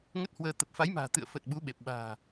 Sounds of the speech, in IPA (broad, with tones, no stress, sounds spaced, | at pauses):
ŋ ə˦˥ t̚ h w əː˧ t̪ ə˨˩ p̚ f a˨˦ j m a̤ː˨˩ t̪ ɨ̰˧˨ ə̯ f ə˨˩ t̚ ɓ u˨˦ ɓ e˨˩ p̚ ɓ a̤ː˨˩